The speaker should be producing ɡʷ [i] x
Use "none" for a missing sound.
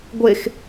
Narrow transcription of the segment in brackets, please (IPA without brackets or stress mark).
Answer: e